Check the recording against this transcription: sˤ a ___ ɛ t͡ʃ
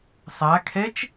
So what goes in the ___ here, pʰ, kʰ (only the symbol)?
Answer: kʰ